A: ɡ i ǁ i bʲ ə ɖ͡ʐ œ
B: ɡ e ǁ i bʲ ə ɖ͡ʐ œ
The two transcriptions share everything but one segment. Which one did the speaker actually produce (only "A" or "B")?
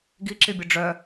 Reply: A